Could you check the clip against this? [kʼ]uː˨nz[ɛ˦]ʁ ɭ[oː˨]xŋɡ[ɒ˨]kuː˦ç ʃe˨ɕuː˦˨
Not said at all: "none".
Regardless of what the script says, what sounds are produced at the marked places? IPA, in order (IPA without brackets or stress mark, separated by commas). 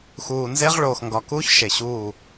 x, e˦, oː˨, ɒ˨